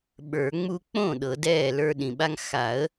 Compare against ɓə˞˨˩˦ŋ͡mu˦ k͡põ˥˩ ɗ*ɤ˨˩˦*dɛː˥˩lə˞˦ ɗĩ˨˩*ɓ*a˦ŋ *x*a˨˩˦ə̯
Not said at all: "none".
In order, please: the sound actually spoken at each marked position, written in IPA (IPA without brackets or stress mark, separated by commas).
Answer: ɤ˨˩˦, ɓ, x